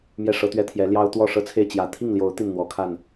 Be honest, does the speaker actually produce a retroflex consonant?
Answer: yes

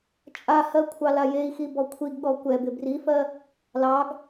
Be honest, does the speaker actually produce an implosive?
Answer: yes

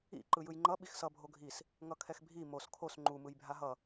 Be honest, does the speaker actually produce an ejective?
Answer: no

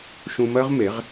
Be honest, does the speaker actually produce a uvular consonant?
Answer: yes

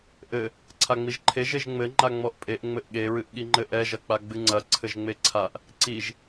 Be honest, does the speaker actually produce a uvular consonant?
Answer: no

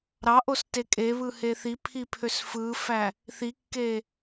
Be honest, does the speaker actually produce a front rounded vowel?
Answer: yes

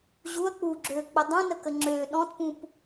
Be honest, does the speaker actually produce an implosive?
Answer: yes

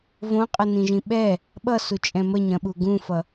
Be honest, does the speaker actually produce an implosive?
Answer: yes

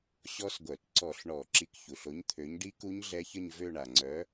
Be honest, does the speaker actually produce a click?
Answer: yes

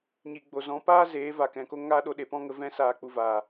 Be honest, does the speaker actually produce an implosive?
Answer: yes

